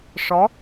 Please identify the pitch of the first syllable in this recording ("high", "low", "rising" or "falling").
rising